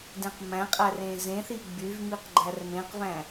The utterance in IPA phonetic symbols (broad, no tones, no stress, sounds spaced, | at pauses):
d ẽ q m æ̃ qʼ æ r ẽ z ẽ θ i ɡ͡b y v m i q ɡ͡ǃ æ r m ẽ q v æ̃